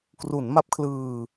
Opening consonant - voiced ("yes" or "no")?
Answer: no